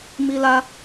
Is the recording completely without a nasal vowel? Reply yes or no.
yes